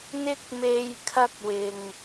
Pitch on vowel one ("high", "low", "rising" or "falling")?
high